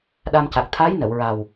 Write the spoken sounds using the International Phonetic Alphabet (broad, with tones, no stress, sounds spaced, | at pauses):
ɗ a˧ m c a˨˩ k̚ t̪ʰ a˧˥ j n ə˨˩˨ w ɹ a˨˩ w